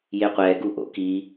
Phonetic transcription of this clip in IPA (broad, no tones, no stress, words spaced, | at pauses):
jeqʷɛɡuʔo̰ ki